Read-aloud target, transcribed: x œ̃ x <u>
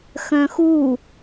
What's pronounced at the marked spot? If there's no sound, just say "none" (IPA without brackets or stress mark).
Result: u